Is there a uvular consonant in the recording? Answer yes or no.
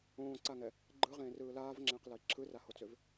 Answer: yes